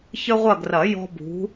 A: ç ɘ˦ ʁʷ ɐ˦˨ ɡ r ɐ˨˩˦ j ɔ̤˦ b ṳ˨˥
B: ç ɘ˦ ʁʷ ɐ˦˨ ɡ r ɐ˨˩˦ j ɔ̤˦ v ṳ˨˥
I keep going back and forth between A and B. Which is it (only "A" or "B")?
A